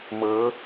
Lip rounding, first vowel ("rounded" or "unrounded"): unrounded